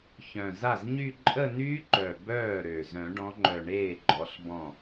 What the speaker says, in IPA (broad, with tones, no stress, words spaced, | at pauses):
çœ̃˨˩za˥˩zɲy˥˧ ǃʼə˥˧nyː˦˥ǃœ˨˩ bœː˥˩ɾø˨˩ zœ̃˨˩˦ɖɔ̃˨˦ŋ͡ǃœ˨˩ ɳeː˥˩ɡ͡ǃɔ˨˦ɬ bɔ̃˥˩